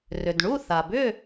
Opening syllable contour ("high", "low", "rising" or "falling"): low